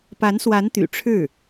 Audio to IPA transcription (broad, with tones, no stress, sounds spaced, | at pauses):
p a˧˥ n s w a˧˥ n t̪ y̰˨˩ ʈ͡ʂʰ ɻ̩˥˩